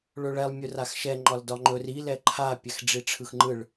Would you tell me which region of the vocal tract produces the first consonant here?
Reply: retroflex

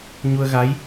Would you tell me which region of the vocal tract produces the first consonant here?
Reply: palate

